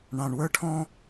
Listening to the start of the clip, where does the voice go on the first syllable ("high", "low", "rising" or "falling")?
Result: low